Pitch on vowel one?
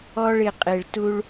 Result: high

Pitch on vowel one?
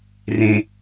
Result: low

